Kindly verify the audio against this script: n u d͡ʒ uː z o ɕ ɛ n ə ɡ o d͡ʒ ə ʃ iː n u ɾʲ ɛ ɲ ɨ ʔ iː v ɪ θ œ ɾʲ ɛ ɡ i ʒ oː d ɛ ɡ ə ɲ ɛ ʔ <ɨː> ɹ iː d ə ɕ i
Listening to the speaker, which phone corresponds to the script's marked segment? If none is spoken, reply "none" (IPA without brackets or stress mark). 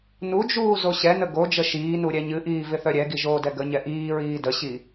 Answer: iː